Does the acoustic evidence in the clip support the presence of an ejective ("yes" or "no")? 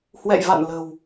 no